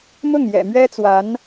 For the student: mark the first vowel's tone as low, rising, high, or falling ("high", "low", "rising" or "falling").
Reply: falling